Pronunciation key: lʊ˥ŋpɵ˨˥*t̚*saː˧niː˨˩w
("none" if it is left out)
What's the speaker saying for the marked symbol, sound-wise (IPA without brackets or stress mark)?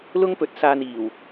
t̚